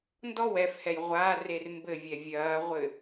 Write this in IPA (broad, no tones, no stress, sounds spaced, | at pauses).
n d ɔ w ɛ f h ɛ j ʁʷ a r e r m b ɘ vʲ ɛ vʲ ɐː ʁʷ ɘ